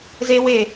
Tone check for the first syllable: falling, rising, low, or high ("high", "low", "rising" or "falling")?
high